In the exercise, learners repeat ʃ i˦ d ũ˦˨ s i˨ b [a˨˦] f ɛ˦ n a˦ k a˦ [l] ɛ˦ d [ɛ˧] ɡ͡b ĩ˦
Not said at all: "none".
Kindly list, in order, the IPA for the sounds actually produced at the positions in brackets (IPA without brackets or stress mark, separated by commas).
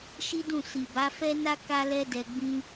a˨˦, l, ɛ˧